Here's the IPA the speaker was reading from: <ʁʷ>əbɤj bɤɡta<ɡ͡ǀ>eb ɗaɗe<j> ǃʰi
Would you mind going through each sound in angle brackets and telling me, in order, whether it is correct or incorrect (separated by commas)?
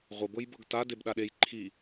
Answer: correct, incorrect, correct